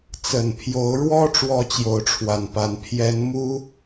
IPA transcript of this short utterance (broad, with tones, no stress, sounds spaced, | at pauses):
t͡s ə˨˩ n pʰ j o˨˦ ʊ̯ ɻ w ɔ˦ ʈ͡ʂ w ɔ˦ t͡ɕ j o˨˦ ʊ̯ ʈ͡ʂʰ w a˨˩ n p a˨˦ n pʰ j ɛ˨˦ n m u˦